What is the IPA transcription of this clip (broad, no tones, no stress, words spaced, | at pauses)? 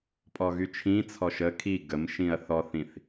pʼɔɣyt͡ʃʰĩ t͡sʰɔʃə kʰi ɡəm ʃĩɐ̯θɔθĩθ